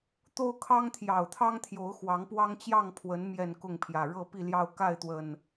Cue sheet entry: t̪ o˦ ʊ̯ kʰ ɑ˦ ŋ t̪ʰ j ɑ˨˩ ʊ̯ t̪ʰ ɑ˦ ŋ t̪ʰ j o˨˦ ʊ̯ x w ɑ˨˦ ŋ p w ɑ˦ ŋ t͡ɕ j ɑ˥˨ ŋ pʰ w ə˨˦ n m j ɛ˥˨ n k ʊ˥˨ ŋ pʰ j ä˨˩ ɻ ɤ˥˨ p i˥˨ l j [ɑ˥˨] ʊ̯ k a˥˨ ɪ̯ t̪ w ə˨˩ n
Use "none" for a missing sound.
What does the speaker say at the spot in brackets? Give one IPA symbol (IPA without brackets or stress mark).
ɑ˥˨